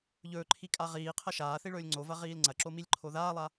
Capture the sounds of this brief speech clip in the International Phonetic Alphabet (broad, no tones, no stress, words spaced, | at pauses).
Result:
ʎɵːǃʰikʼa ʁiːqʰɐ ʃaːθiɭɵːlʲ ŋ͡ǀovɐʁiːl ŋ͡ǀɐǁomilʲǃʰo ðaːlˠa